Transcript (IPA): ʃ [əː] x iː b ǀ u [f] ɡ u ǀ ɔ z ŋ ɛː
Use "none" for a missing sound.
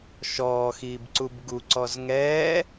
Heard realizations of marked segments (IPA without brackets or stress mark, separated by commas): ɔː, b